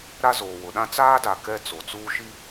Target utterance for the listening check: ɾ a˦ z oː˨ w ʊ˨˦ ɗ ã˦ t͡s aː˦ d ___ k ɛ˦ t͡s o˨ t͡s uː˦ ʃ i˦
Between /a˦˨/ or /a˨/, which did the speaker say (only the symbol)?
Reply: a˨